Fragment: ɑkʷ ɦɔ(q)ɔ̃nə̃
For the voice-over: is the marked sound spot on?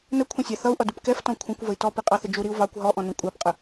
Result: no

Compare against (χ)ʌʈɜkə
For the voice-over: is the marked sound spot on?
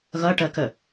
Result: no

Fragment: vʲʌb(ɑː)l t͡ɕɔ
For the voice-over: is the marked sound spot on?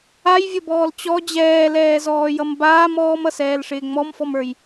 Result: no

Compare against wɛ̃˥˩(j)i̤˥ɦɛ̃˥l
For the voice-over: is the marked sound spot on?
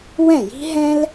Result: yes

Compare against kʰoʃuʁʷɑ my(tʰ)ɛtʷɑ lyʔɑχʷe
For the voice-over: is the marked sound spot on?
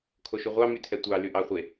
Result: yes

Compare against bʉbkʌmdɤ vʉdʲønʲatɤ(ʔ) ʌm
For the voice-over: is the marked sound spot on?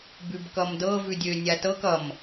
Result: no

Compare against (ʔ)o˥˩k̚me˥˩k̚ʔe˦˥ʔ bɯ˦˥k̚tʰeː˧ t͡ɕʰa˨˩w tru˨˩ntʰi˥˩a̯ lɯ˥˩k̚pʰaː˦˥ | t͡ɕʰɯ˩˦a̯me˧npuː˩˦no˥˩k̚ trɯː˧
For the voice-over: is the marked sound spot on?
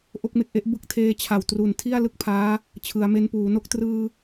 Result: yes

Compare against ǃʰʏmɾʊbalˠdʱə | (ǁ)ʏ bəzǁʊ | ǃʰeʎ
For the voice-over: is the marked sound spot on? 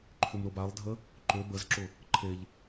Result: no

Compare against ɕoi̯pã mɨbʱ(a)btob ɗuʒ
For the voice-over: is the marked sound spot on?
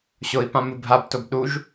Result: yes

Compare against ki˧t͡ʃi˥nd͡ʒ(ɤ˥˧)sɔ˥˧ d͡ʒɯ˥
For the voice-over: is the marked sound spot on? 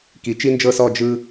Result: yes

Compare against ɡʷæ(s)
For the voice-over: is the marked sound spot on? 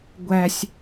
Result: no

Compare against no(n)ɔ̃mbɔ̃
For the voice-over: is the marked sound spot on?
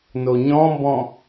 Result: no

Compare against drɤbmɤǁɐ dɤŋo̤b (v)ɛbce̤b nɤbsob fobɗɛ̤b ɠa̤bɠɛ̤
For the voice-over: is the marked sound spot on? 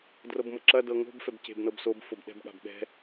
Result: no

